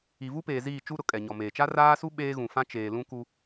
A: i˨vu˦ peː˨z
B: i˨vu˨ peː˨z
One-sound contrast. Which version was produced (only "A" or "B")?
A